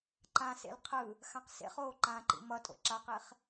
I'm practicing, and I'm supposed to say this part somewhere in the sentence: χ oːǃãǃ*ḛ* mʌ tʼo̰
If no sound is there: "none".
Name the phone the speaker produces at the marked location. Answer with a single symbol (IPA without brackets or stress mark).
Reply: ḭ